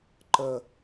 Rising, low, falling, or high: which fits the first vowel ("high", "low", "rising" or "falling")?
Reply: low